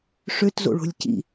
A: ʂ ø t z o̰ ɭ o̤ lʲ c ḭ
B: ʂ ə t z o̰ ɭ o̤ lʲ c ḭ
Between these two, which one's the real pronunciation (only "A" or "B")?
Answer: A